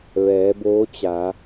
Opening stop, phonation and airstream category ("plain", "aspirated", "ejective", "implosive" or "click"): plain